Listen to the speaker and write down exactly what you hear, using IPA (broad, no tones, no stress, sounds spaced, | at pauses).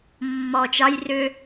mː ɔ t͡ʃ ɑ j r ʏ